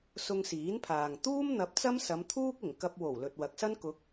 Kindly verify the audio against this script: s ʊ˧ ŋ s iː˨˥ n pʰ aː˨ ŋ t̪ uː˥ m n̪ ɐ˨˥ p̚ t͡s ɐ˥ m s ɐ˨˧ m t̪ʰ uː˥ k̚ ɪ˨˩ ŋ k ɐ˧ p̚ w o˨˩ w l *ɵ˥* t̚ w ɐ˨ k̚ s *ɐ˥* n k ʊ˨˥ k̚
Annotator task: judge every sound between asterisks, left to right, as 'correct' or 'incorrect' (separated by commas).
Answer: incorrect, correct